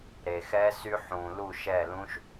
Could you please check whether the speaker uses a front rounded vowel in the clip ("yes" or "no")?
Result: yes